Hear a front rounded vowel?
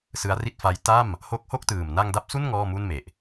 no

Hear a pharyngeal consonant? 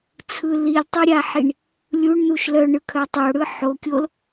yes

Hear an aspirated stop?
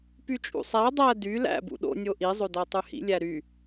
no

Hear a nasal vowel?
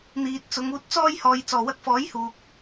no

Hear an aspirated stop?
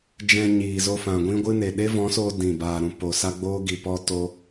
no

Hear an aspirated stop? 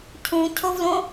yes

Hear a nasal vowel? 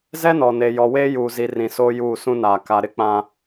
yes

